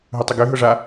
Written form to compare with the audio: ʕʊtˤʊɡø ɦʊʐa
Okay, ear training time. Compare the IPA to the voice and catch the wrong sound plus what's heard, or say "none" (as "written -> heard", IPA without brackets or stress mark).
ʕ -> ɦ